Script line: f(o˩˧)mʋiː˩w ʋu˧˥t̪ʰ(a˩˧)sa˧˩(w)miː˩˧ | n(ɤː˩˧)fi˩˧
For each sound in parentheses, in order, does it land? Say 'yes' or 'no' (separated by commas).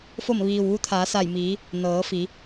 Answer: no, no, no, yes